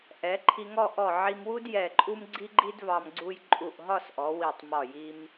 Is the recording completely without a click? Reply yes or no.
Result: no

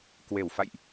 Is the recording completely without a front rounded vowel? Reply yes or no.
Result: yes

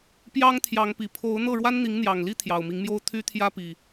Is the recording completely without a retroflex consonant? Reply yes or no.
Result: no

